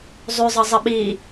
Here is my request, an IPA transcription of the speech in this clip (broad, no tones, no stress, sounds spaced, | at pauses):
zˤ ʉ zˤ ʌ zˤ ɪ ɓ i